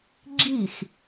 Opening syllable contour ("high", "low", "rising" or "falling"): falling